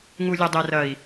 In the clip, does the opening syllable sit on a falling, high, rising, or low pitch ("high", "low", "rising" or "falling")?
low